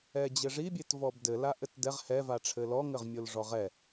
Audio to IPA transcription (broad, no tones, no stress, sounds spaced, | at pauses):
ɛ d͡ʑ ɘ ʐ i bʲ e t v ɔ b d ɘ l a ʔ ɘ t d ɛ ʁ h ɛ v a ʈ͡ʂʰ ɘ l ɔ ŋ ɘ ʁ mʲ o l ʐ ɔ ʁ ɛ